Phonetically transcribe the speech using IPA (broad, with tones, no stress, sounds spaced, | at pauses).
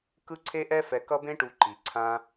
k ɯ˦ ǀʰ e˦ ʔ ɛ˦ f ɛ˧ k ʌ˦ b ẽ˦ ʈ u˧ ǃ i˨ ǀʰ ã˧